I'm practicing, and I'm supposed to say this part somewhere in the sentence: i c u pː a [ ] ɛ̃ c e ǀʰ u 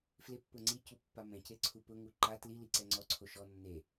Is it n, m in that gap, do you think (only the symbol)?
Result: m